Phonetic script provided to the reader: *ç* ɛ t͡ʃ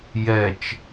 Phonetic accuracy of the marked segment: incorrect: j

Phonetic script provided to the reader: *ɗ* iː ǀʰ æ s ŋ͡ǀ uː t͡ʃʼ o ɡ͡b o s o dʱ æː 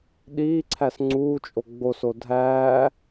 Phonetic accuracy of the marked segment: correct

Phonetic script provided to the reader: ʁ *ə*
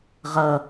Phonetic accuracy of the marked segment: incorrect: ʌ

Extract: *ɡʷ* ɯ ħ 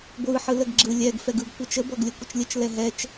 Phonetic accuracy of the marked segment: correct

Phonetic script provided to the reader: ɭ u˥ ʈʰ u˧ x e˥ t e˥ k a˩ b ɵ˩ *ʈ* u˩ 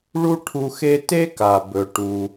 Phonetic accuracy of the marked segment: correct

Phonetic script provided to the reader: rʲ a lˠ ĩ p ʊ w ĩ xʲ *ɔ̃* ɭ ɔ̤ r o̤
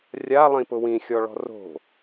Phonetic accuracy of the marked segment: incorrect: ɔ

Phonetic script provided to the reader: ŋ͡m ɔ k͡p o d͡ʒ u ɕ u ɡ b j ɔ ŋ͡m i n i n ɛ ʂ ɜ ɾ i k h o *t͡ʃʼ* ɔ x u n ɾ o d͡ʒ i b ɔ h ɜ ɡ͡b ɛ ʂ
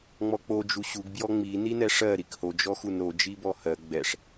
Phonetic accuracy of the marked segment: incorrect: d͡ʒ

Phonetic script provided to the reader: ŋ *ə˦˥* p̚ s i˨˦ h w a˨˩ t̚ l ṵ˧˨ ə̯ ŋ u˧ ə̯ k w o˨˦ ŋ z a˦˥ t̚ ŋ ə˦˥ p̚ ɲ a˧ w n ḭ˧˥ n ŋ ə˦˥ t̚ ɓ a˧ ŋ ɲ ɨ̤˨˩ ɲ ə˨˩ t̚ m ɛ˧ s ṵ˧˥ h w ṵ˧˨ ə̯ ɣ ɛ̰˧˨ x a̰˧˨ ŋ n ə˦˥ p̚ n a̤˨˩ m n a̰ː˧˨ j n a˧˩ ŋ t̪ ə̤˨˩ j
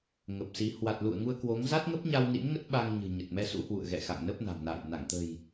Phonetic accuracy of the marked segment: incorrect: ə˨˩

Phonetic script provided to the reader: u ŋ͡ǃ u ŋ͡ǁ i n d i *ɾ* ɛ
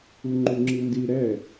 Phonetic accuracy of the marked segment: correct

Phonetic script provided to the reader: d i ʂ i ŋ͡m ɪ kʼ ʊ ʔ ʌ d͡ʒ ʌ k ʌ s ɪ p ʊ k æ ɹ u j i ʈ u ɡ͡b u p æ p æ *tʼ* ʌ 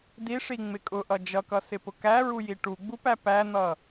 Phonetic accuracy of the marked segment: incorrect: n̪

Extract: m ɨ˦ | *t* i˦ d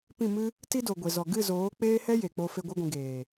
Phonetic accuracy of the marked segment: correct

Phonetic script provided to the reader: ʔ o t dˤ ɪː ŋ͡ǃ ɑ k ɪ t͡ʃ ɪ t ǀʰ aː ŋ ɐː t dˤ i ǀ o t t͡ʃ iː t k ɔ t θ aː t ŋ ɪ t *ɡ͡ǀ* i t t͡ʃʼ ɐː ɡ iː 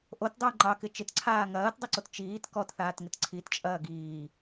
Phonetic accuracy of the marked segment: incorrect: ǀʰ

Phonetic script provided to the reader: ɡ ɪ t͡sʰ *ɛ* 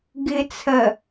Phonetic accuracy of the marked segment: incorrect: ɜ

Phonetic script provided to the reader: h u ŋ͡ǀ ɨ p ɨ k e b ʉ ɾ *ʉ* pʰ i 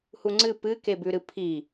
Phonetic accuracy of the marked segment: incorrect: ɨ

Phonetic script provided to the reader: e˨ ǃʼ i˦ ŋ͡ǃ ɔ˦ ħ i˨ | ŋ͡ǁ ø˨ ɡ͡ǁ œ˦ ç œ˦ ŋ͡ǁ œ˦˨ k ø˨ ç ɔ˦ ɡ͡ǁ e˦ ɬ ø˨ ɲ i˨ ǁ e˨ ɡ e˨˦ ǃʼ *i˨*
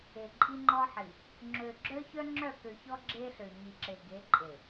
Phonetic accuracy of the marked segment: incorrect: e˨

